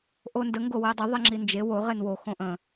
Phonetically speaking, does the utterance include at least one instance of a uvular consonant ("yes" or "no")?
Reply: yes